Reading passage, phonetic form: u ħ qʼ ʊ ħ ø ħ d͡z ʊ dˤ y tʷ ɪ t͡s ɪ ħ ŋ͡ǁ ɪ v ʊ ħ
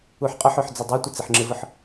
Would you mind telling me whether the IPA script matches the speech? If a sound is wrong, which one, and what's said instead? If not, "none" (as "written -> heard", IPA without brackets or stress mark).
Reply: none